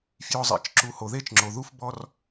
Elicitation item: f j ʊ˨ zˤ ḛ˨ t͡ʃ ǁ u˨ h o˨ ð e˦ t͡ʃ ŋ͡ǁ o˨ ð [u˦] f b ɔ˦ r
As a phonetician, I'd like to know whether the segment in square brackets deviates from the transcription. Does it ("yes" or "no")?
no